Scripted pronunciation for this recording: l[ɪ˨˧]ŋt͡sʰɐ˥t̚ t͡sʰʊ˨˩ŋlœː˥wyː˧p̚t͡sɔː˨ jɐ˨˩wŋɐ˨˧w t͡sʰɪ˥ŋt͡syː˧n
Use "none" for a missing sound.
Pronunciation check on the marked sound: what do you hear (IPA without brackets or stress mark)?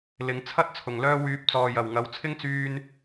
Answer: ɪ˨˧